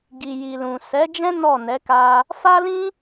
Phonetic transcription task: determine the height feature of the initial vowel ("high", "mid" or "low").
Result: high